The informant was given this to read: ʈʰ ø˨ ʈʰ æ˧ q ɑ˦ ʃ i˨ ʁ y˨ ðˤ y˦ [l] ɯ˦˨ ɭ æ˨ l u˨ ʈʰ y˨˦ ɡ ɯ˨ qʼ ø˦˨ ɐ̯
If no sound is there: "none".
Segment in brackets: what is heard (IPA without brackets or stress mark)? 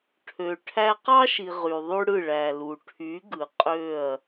ɽ